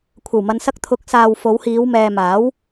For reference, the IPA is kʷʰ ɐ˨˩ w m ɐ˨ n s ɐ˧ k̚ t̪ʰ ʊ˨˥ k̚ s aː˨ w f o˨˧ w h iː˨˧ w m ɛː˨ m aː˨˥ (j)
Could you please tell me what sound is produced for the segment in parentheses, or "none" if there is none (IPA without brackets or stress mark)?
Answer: w